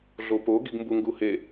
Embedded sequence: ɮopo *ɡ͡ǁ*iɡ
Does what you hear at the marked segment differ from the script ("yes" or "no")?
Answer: yes